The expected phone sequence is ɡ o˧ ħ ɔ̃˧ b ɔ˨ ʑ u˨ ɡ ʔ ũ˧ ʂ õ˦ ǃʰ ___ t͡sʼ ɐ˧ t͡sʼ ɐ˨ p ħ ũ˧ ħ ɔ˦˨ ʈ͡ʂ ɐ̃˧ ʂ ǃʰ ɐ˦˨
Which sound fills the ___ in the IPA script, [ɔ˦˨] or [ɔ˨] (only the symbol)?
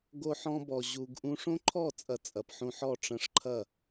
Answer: ɔ˦˨